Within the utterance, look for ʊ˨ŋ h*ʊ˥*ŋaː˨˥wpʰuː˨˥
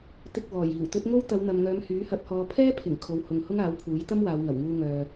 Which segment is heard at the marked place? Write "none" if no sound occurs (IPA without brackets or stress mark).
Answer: ʊ˥